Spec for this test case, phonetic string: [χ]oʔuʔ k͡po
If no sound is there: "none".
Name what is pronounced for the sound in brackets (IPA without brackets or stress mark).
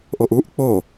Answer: ʔ